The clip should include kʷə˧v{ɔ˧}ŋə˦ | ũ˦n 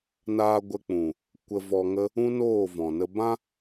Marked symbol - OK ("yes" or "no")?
yes